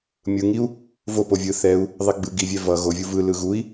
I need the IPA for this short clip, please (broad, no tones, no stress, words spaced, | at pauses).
mʲɯŋiu̯ | vopo vʲɯ θɛu̯ | ðˤiɡ͡bɯ ɡivʲɛ vʌ ɣovʲu vɯlɯ ɣui̯